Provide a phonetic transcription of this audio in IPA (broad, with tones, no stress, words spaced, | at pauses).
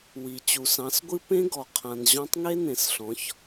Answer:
wi˨ t͡ɕu˨sɑ̃˨˦sɡʷɨ˦ pẽ˦ɡɔ˨ qʰã˨nʑɔ̃˧tˤ ŋe˦nẽ˨sɬɔ̃˨˦ç